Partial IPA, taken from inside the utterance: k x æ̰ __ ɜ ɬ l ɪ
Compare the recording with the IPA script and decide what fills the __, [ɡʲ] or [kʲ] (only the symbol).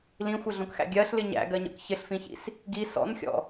ɡʲ